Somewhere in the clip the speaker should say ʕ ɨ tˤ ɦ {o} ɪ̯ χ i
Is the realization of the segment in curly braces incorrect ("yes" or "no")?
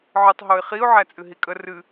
no